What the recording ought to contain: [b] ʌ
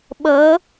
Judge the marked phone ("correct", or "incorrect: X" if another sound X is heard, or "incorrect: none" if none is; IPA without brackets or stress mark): incorrect: ɓ